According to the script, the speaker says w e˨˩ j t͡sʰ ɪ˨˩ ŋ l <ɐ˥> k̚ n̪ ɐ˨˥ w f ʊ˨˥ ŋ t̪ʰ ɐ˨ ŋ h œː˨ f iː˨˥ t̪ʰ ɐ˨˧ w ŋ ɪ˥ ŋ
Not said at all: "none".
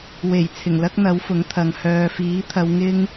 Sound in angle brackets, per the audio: ɐ˥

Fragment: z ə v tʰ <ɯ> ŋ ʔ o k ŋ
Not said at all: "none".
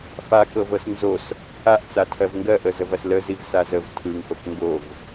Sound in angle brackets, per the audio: ɯ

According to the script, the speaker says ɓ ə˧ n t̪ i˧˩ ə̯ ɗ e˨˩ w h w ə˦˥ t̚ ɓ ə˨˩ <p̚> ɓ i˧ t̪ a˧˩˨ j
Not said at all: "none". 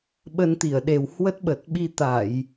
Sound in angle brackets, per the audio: t̚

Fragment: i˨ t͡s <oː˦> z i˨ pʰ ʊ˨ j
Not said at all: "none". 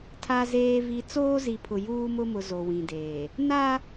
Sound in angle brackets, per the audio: oː˦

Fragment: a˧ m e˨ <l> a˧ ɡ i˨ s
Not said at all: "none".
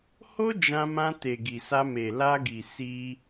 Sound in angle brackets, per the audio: l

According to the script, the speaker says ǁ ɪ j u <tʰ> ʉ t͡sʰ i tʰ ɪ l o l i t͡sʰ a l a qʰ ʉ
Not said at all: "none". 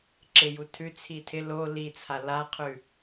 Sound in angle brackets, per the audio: tʰ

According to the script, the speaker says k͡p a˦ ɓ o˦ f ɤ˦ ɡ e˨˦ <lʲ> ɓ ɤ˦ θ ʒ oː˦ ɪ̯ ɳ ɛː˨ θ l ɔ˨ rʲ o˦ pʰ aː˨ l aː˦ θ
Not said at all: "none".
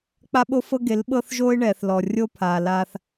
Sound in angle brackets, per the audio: l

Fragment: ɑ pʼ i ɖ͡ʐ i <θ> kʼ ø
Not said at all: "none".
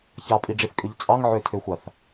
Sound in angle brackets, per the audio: θ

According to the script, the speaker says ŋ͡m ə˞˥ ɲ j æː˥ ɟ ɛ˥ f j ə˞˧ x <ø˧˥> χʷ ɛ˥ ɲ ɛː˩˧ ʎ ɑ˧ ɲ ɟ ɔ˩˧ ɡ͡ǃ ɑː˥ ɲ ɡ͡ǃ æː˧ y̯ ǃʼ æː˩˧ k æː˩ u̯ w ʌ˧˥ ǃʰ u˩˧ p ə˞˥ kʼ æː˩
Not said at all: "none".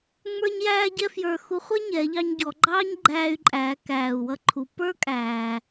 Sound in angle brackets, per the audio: u˧˥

